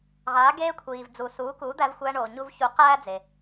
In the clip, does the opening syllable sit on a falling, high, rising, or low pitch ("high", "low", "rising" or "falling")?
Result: rising